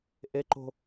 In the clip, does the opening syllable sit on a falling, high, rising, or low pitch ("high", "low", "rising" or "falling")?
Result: high